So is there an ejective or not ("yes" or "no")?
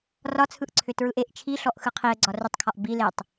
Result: no